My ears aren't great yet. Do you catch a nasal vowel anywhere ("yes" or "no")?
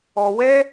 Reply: no